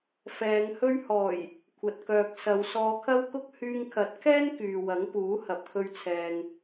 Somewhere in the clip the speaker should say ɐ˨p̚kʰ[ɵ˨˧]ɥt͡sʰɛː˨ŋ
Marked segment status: incorrect: ɵ˧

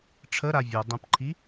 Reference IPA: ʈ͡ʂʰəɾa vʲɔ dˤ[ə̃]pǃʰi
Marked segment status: correct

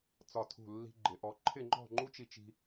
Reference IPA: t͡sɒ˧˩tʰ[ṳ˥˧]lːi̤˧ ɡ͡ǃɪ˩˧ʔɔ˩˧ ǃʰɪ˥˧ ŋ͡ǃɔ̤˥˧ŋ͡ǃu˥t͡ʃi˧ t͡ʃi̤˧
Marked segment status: incorrect: ṳ˧˩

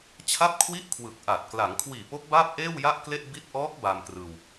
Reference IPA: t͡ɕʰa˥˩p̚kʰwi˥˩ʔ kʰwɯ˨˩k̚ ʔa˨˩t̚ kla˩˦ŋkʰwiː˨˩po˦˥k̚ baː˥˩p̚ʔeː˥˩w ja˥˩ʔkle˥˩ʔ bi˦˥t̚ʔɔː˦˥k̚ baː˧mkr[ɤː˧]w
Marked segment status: incorrect: ɯː˧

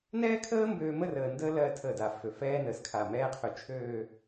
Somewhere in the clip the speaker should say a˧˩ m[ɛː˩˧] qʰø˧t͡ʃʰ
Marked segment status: incorrect: ɛː˥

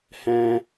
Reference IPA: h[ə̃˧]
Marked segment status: incorrect: ɛ̃˧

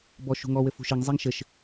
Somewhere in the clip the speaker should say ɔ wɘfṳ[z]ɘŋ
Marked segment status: incorrect: ʃ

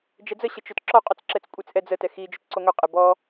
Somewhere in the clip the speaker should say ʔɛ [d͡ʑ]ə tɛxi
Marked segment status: incorrect: d͡z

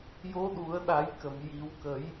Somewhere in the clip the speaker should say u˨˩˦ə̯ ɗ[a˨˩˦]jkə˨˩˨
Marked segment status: correct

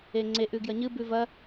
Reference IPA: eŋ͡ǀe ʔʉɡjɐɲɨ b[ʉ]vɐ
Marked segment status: correct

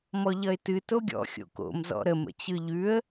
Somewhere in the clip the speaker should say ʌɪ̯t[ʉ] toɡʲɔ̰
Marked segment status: incorrect: ɨ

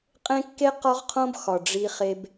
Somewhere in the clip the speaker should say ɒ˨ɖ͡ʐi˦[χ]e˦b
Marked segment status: correct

